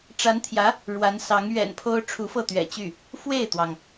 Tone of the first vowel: rising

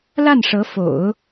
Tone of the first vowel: falling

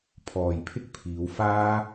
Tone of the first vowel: low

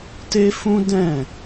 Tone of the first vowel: high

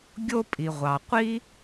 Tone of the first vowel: high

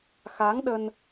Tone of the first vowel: rising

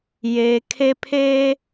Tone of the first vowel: low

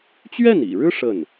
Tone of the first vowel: falling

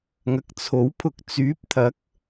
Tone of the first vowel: low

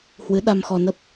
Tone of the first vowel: rising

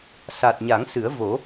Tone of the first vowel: low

